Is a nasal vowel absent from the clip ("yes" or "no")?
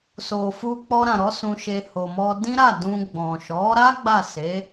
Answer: no